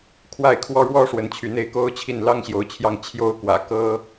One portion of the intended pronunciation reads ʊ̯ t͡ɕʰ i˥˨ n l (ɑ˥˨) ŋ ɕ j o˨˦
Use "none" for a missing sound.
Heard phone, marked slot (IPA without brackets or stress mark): ɑ˦